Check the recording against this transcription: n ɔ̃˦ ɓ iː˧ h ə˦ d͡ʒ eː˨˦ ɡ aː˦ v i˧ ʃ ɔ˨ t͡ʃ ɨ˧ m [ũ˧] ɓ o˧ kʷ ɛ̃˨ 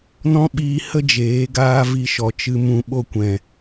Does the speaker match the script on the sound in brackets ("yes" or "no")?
yes